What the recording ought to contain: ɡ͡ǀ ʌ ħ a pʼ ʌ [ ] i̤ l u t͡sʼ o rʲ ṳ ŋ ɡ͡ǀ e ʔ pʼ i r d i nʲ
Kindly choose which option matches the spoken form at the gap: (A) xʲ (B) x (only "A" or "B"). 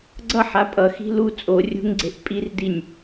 B